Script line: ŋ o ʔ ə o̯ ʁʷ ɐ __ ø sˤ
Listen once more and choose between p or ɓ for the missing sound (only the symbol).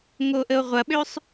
ɓ